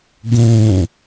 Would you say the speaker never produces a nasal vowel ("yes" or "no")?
no